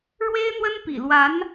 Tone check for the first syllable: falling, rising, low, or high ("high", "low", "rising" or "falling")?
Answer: high